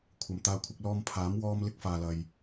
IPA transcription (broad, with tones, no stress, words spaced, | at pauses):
kʷʰɐ˨mt̪aː˧kʷʰɪ˧k̚ lɔː˧mpʰaː˨˥m wɔː˧m lɪ˧k̚faː˨lɐ˨j